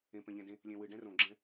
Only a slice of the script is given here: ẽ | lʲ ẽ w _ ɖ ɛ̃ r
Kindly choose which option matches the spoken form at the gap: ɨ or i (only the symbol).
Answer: ɨ